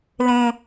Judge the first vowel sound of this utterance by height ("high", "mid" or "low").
mid